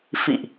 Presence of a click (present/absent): absent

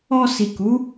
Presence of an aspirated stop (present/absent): absent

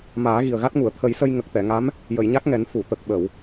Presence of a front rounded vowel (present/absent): absent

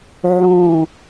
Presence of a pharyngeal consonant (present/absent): present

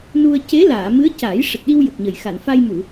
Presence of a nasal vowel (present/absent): absent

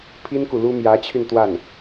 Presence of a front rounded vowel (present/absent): present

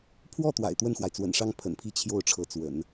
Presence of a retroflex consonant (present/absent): present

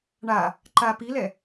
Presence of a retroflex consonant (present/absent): present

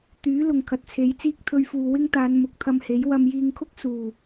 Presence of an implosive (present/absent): absent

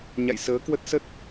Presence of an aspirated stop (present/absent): absent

